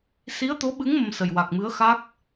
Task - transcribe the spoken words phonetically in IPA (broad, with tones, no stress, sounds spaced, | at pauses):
s i˧˥ ə̯ t̪ o˧˥ ɓ ɨ˧˥ ŋ m ə˧ m s ə˨˩ j w a˨˩ k̚ m ɨ˧˥ ə̯ x a˦˥ k̚